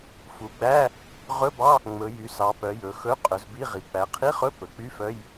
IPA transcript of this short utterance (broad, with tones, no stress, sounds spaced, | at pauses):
f u˩˧ ɡ͡b æ˧˥˧ | ʁ ɵ˧˥˧ b ɑ˧˥˧ | ŋ͡m ɵ˩˧ j y˩˧ s ɑ˩˧ p œ˩˧ j ɵ˩˧ x ɵ˧˥˧ qʼ ɵ˩˧ z b i˧˥˧ ʁ i˩˧ k͡p æ˩˧ qʰ i˧˥˧ χ ɵ˧˥˧ p ɵ˩˧ k͡p y˧˥˧ f œ˧˥˧ j